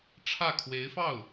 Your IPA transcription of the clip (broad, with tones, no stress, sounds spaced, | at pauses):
ʈ͡ʂʰ ä˥˩ kʰ w e˧˥ ɪ̯ f ɑ˥˩ ʊ̯